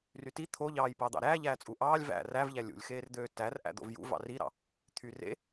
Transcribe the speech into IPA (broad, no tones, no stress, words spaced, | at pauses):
ryti t̪ʰoʎɑːj pɑːd̪ɑ̰ɾæː ʎæːt͡sʼuʔɑːlʲ væ̰ rævʎæ lʲṵlʲxeːrd̪øː tærʔæ̰ d̪o̰vjṵ vɑ̰riɾɑ̰ | t̪ʰyrḛ